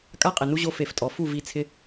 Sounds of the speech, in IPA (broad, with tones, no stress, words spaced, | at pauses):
kʼa˦qʼɪ˨nu˦ʑo˧ fe˨ftʼɔ˨fu˦˨ vi˧t͡sʰɪ˧